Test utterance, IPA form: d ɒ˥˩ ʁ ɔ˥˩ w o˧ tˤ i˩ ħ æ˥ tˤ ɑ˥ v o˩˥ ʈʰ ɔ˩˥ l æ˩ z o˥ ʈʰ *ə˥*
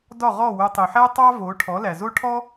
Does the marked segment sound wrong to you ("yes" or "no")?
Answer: yes